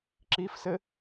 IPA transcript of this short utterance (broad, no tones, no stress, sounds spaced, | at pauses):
ǁ i f s ɘ